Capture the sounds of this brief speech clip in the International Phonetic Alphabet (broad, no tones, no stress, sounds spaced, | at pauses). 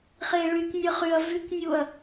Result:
χ e ɭ y k nʲ ə χ y ɐ̯ v y k nʲ u ɐ̯